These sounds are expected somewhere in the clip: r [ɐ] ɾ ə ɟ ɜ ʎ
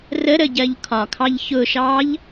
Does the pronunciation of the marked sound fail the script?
yes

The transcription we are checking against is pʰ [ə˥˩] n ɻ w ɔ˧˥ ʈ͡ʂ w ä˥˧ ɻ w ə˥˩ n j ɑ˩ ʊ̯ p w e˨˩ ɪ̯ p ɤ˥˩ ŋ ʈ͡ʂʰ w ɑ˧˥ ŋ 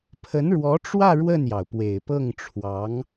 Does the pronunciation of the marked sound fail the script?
yes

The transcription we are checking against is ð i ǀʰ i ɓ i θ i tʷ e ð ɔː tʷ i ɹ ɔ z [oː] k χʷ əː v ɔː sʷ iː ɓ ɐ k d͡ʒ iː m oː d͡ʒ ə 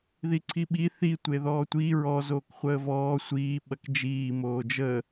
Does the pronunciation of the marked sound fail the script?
no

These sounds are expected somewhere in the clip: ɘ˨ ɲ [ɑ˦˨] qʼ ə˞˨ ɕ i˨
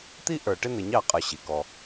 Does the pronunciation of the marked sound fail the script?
no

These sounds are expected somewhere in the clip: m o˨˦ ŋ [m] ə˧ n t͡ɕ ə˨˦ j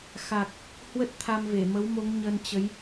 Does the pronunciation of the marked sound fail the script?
yes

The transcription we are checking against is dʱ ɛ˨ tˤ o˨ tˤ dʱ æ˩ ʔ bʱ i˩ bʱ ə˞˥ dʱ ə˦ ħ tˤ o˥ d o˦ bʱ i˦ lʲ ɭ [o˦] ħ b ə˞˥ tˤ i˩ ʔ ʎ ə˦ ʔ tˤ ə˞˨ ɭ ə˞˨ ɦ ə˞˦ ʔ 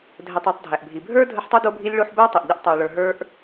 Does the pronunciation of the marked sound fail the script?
no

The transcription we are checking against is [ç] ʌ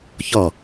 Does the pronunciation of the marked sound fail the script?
no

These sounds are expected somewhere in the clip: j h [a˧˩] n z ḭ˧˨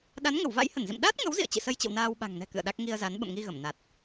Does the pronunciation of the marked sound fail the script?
yes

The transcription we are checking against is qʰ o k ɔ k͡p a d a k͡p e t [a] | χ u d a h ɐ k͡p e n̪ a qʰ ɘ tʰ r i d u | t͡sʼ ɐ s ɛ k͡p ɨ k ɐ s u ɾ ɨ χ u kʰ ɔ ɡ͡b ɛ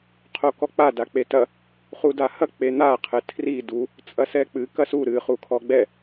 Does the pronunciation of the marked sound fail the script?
yes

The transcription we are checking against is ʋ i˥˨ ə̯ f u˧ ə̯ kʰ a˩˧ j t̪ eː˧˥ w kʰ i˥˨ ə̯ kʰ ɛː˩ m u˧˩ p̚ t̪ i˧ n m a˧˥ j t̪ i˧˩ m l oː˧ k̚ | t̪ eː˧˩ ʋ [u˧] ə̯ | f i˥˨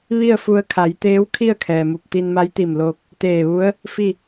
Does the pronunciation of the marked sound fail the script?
yes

